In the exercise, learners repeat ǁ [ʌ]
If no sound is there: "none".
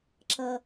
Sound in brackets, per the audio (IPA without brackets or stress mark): ʌ